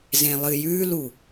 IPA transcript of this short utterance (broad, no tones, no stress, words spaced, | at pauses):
zẽlˠɨjʉlu